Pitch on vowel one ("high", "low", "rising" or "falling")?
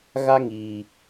high